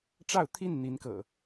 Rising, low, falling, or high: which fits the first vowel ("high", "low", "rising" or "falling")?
falling